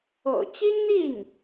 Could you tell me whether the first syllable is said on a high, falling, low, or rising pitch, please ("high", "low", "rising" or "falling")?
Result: low